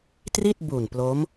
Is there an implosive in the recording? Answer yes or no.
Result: no